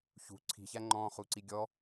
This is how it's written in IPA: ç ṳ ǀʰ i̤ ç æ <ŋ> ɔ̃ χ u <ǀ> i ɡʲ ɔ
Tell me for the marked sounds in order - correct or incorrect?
incorrect, correct

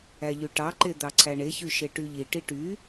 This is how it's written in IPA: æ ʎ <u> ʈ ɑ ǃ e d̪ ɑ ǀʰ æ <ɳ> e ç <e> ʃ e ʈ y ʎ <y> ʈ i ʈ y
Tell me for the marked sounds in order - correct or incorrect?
incorrect, correct, incorrect, incorrect

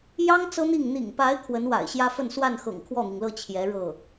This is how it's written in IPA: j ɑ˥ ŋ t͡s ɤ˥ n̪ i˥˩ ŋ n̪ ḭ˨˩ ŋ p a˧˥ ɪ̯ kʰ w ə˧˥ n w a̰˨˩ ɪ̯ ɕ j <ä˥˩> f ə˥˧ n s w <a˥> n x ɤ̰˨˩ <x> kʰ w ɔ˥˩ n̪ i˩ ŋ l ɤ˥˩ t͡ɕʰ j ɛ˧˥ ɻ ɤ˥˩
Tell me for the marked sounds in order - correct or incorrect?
incorrect, incorrect, incorrect

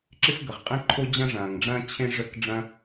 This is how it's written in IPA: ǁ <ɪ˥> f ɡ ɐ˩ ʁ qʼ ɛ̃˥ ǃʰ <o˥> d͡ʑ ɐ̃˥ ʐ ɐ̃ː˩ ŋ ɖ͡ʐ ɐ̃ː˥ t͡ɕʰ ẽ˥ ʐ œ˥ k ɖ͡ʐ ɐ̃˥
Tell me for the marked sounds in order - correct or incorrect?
correct, correct

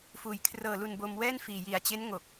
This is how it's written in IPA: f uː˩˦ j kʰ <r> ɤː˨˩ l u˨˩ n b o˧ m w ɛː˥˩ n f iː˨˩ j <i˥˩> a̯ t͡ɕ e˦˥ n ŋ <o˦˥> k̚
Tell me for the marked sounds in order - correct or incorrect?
correct, incorrect, incorrect

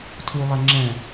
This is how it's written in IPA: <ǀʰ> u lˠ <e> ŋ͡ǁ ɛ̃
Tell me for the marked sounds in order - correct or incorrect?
incorrect, incorrect

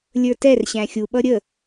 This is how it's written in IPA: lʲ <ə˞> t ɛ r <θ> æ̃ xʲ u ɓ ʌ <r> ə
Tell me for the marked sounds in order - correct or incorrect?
correct, incorrect, incorrect

